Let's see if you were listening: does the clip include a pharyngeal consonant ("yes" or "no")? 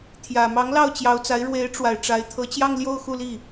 no